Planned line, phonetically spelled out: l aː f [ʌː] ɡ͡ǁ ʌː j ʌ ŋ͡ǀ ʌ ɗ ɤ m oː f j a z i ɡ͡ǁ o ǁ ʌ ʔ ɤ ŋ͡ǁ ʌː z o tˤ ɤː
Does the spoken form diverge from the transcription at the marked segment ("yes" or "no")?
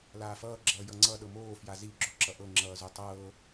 no